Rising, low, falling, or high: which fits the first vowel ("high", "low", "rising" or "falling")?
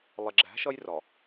low